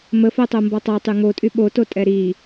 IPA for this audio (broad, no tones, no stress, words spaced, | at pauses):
məfotˤombɔ tˤatˤy ŋotʼy ɓototʼɛ ɾi